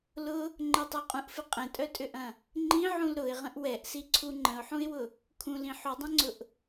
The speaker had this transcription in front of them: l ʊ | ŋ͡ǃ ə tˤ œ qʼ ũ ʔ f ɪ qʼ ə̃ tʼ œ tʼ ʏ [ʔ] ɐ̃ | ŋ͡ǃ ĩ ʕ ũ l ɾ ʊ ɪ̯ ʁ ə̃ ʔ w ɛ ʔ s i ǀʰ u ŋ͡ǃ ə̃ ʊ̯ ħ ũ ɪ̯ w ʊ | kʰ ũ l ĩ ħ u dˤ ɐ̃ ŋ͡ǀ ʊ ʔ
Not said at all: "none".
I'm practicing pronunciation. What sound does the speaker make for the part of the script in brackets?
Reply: ʔ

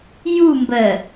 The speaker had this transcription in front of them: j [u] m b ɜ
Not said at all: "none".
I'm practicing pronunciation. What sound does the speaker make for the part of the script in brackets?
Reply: u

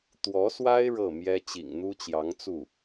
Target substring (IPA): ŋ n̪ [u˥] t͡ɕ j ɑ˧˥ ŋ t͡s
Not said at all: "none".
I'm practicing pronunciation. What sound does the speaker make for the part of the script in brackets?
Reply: u˥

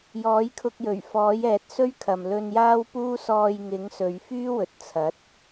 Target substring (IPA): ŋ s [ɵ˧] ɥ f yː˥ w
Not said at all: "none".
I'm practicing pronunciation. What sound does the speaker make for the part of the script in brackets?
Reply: ɵ˨˧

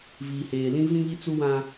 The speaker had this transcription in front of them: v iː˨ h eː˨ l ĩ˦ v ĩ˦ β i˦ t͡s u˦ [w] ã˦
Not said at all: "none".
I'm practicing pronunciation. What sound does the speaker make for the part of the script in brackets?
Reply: w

